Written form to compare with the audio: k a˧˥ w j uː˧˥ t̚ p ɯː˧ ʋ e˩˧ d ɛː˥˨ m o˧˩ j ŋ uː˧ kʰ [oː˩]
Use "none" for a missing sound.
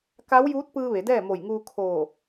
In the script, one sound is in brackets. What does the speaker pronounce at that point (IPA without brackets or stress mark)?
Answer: oː˧˩